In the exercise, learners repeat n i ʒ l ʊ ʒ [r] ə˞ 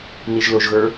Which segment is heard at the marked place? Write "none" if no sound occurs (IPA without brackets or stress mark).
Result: ɣ